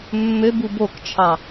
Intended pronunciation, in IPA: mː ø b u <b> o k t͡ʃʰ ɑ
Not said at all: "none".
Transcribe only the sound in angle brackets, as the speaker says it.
b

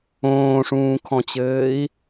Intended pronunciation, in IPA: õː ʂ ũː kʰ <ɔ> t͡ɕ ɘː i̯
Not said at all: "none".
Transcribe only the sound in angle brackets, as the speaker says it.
ɔ̃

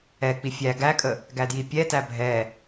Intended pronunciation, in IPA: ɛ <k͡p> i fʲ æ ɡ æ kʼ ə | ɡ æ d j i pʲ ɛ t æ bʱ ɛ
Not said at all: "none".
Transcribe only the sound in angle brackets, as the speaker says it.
k͡p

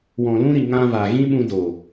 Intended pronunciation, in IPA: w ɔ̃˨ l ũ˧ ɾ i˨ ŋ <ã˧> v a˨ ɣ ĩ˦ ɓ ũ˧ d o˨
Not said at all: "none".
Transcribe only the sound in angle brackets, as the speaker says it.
ã˧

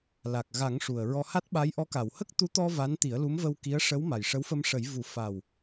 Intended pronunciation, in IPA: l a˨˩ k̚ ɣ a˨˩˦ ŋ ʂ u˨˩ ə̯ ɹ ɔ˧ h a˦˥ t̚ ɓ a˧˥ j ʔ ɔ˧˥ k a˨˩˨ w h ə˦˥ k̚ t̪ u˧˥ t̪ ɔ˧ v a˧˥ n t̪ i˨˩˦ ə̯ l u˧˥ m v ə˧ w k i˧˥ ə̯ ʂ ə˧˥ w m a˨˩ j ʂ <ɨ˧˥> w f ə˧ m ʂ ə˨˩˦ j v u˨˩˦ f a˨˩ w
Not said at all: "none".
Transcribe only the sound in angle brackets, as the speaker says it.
ə˧˥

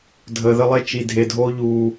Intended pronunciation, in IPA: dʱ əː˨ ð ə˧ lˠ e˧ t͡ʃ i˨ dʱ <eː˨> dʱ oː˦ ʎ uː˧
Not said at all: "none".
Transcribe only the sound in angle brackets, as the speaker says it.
e˨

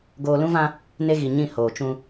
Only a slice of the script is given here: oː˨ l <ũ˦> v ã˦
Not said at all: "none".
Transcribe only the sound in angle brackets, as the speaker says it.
ũ˦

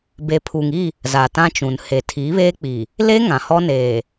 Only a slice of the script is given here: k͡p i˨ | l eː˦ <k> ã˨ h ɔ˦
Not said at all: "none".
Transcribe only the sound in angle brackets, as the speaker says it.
ŋ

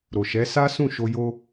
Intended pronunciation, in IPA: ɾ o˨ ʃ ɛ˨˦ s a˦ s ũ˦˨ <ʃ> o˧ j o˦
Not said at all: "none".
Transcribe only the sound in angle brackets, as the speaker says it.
ʃ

